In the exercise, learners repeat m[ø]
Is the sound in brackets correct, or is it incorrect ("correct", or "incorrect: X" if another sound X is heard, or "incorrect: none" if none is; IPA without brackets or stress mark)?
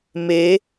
incorrect: e